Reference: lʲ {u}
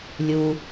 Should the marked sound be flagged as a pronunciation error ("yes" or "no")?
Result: no